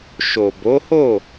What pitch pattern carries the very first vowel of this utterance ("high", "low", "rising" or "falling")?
low